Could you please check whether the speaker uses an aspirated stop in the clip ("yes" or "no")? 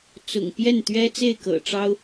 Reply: no